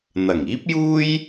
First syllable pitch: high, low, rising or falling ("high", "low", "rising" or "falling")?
low